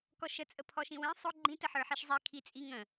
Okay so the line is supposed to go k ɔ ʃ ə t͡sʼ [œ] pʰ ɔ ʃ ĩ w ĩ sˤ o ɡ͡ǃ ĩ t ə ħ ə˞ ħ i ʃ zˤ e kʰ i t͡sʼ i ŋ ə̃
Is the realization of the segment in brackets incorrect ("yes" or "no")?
yes